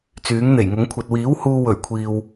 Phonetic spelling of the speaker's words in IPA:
t͡s yː˨˥ ŋ n̪ e˨˩ j ŋ ʊ˨˥ ŋ kʷʰ ɐ˨ t̚ w iː˨˥ w h uː˧ w ɵ˨˩ ɥ kʷʰ iː˨ w

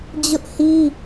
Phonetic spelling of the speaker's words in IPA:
d͡ʑ ʊ˦ ʔ h i˦

